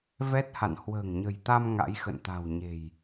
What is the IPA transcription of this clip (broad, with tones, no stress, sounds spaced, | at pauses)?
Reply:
v ɛ˦˥ t̚ h a̰˧˨ n h w ə̤ː˨˩ ŋ ɲ ə̤˨˩ j t̪ a˧ m ŋ a̰˧˥ j x ə̰˧˨ n t̪ a̤˨˩ w ɲ e̤˨˩ j